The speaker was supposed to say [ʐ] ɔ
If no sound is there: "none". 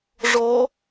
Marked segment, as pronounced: ʐ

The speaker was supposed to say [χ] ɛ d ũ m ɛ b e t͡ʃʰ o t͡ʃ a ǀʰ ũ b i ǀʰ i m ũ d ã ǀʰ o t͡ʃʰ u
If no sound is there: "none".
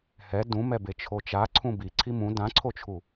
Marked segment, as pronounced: h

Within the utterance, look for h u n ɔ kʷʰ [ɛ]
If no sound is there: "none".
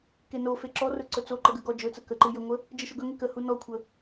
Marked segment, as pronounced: ə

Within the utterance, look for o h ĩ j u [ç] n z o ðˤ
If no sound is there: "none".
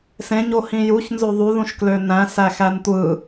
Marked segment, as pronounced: ç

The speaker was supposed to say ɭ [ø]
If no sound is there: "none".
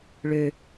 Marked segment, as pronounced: ø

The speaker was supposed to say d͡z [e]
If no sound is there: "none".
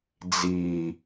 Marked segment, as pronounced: i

